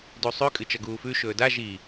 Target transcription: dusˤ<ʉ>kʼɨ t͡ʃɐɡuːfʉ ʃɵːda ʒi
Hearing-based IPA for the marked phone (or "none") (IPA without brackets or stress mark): ʉ